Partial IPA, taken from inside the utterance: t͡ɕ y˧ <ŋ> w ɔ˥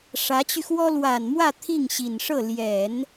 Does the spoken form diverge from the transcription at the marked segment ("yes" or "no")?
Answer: yes